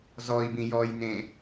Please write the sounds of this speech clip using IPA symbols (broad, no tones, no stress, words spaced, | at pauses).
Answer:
zɔi̯bĩ jɔjnẽ